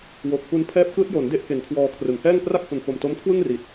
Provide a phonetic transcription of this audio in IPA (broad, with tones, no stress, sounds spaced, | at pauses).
w o˨˩ k̚ p u˧ n pʰ ɛː˦˥ p̚ k ɯː˦˥ t̚ j o˩˦ n d e˥˩ ʔ k e˨˩ n kʰ w ɔː˧ kʰ r ɯ˩˦ ŋ h ɛː˥˩ ŋ p r a˥˩ k̚ h u˨˩ n f o˨˩ m t o˦˥ m kʰ w ɯ˥˩ ŋ r i˨˩ t̚